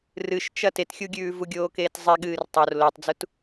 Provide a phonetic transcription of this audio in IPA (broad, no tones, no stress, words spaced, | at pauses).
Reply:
rɨʃt͡ʃɐ tetxʲuɡʲʉː vuɡʲoːkeːtzˤe ɠɨːrtˤor lotˤd͡zut